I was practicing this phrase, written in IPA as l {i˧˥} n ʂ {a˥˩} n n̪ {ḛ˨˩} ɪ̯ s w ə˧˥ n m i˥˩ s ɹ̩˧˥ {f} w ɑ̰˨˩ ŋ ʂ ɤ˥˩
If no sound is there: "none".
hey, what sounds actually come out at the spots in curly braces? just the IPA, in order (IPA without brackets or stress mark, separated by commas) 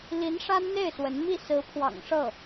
i˧˥, a˥, e˥˩, pʰ